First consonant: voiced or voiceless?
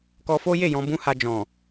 voiceless